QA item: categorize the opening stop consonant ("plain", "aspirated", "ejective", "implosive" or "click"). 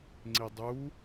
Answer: click